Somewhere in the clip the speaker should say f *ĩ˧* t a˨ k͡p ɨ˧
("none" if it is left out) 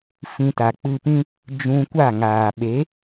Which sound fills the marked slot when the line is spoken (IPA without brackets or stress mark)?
ĩ˧